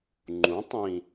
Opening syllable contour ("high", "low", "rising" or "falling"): rising